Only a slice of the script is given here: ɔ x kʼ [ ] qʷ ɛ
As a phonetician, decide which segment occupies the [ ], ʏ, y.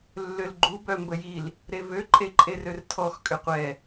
ʏ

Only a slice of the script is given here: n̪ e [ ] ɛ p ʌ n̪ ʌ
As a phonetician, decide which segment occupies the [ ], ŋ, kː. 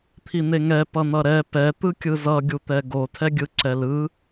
ŋ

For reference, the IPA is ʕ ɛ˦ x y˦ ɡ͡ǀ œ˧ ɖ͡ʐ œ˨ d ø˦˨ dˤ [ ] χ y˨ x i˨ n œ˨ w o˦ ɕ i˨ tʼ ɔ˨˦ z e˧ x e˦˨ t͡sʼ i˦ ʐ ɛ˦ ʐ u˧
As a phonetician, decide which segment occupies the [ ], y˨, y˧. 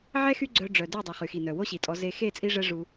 y˨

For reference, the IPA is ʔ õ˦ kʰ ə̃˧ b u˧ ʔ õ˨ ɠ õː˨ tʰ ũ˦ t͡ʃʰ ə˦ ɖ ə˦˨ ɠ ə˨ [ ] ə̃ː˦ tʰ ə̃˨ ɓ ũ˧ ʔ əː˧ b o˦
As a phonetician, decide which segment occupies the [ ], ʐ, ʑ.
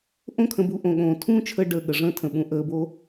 ʐ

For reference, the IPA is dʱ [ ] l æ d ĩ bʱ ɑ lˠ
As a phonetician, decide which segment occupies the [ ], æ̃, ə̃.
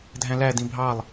æ̃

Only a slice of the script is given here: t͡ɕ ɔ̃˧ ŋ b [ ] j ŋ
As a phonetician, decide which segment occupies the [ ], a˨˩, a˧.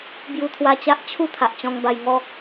a˧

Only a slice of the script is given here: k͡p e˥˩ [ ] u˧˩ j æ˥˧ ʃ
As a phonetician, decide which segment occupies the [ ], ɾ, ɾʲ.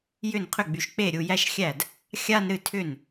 ɾʲ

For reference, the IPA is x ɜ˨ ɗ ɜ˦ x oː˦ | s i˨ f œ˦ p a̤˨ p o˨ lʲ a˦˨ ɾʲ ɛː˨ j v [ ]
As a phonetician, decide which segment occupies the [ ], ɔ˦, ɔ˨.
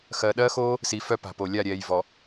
ɔ˨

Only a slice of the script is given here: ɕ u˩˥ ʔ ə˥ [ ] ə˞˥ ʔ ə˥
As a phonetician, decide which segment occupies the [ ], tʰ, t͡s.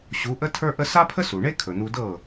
tʰ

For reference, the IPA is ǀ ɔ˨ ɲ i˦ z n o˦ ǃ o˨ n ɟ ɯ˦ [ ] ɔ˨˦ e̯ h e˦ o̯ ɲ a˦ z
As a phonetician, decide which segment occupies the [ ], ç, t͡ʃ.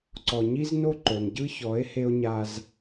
ç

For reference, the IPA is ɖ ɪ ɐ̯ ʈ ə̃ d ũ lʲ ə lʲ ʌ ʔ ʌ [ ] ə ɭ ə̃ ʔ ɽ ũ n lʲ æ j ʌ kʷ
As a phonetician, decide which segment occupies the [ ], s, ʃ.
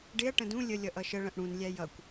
ʃ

